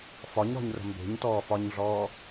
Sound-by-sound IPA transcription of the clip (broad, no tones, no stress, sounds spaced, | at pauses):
f ɒ ɲ ɾ ɔ̤ ɲ r ə̤ m b e̤ ɲ t ɔː f ɒ ɲ ɮ ɔː